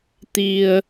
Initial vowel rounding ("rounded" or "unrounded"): unrounded